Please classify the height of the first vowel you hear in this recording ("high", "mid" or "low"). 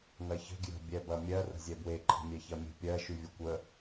low